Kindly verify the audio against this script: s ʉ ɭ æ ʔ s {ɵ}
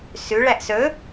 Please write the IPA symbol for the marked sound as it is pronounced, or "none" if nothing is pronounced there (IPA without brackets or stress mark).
ɵ